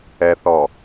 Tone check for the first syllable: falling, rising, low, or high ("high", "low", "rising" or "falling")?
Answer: low